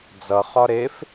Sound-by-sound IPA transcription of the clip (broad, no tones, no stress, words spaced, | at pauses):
d͡zʌ χɒɾef